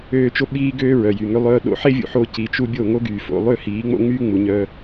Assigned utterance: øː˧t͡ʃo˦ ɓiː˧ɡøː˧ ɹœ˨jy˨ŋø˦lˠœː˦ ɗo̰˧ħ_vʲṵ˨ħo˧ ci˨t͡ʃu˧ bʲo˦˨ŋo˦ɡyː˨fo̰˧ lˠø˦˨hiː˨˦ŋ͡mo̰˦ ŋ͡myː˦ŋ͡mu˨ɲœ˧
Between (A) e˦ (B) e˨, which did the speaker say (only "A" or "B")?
A